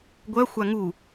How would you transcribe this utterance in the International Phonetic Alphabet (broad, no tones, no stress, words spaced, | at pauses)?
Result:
ɡʷœ xʷaŋu